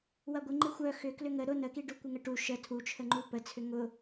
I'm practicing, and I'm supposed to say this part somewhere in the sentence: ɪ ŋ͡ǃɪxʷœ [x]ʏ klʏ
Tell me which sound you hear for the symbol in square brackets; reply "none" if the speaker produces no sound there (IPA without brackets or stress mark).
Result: x